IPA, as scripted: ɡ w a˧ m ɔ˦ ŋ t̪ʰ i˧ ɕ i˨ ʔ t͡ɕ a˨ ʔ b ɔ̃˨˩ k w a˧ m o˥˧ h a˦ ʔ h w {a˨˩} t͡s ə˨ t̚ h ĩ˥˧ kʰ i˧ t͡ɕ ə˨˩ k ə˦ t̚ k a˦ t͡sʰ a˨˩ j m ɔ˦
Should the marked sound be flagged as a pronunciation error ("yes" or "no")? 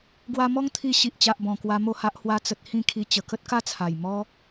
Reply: yes